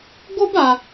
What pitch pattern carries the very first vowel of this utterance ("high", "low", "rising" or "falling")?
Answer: high